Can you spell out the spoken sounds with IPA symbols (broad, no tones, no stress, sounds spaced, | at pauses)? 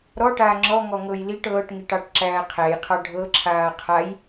ɾ ɔ ʈ aː ŋ͡ǁ ɔ ŋ ɔ ŋ ɤ j l i ʈ ɤː ʈ ŋ i ʈ ɑ ʈ ǁ æː qʰ æ j qʰ ɑ ɖʱ ɤ ǁʰ aː qʰ a j